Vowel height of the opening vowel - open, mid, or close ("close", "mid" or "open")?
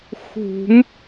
close